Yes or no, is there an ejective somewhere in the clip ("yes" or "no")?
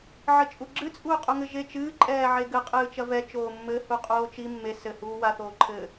yes